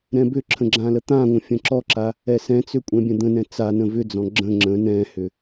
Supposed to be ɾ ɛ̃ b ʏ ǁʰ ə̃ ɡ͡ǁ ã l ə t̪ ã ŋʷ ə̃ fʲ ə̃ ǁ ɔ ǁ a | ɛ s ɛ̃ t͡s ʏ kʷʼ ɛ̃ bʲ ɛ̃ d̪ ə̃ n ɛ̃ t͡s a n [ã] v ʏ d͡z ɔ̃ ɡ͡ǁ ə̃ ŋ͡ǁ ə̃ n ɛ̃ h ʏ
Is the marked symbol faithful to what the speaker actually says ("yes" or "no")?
no